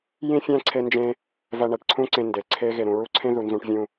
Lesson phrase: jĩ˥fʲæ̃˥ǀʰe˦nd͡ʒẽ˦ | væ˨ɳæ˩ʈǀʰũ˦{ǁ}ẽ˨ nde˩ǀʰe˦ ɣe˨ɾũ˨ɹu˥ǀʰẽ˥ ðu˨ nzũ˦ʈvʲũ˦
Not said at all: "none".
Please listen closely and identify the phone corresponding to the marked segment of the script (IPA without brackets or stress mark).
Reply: ǀ